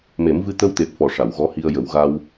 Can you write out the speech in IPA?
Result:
m e˨˩˦ m v ɨ˧ t̪ ə˧ w t̪ e˨˩ p̚ f ɔ˨˩ ʂ a˨˩˨ w ɣ ɔ˧˥ h i˧ ə̯ j ə˨˩˦ w ɣ a˧ w

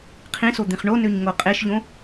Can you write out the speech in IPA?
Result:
qʰ ĩ s o d̪ ĩ χ ɳ o n ø ɲ ŋ o qʼ e ʃ ʎ õ

